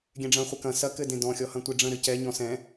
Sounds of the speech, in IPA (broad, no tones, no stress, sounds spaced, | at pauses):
ɡʲ ɛ̃ ɖ͡ʐ ɐ̃ χʷ ɛ k ɐ̃ s ɐ k ɘ d ẽ d ɔ̃ xʲ ɔ h ɐ̃ tʷ e ɖ͡ʐ ə̃ ɾ ɘ c ɛ ɲ ɔ̃ s ɛ̃